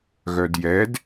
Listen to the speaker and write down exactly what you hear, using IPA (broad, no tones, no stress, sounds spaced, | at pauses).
ɣ œ d j ɛ d